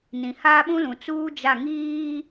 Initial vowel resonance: nasal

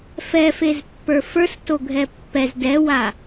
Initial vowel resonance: oral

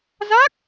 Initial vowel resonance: oral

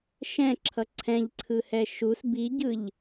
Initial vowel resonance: nasal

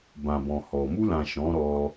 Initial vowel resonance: nasal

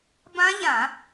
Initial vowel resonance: nasal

